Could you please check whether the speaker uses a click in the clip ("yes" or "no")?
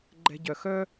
yes